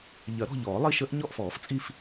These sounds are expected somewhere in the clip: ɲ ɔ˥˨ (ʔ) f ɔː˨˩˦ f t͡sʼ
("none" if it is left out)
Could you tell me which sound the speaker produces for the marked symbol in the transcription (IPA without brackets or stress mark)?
ʔ